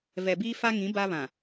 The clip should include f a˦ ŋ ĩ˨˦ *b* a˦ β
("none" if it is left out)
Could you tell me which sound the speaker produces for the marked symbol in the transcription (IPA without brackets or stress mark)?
b